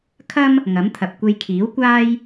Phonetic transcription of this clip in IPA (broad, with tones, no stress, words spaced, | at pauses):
kʰɐ˥m | ŋɐ˨˥mt̪ʰɐ˨p̚ kʷe˧jkʰiː˨˥wkʷaː˥j